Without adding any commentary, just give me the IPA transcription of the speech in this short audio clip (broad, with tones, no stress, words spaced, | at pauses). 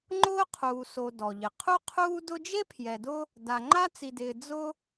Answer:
ŋ͡ǃʊː˥qʰuː˨so˨ dɔ˩ʎɪ˩ qʰu˦qʰuː˦ dʊ˦d͡ʒe˥pʰjɛ˨dʊ˦ | da˨ŋ͡ǃa˦ t͡si˨dɪː˨ d͡zʊ˦